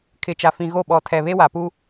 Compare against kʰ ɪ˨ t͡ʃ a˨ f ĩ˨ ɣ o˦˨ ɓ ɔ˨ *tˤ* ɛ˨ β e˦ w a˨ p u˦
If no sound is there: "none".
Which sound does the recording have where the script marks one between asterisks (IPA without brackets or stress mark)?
tʰ